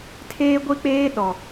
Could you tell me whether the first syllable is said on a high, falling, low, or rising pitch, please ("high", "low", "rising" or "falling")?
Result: high